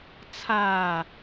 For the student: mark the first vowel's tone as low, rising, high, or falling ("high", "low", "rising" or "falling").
low